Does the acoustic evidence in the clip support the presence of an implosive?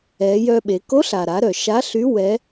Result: yes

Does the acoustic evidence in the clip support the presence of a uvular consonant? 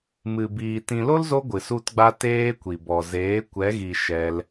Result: no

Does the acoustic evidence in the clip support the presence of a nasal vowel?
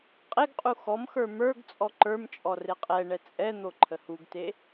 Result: no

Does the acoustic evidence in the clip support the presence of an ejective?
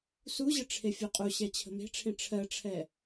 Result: yes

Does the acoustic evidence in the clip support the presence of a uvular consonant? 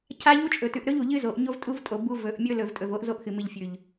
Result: no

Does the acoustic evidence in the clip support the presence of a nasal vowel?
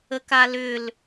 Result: no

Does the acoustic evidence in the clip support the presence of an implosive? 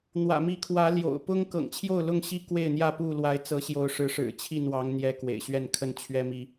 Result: no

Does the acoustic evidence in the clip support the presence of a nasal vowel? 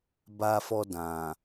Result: yes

